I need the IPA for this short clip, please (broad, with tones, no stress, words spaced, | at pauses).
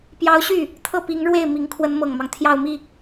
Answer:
pjɑ˧˥ʊ̯ɕy˥˩ | t̪ʰɤ˥˩pi˧˥ŋ ɻwe˥˩ɪ̯ mi˧˥ŋkʰwə˧˥nmɤ˨˩ŋmɑ˦ŋ t̪ʰjɑ˥˧ʊ̯mi˥˩